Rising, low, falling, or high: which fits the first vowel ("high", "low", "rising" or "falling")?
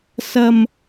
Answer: low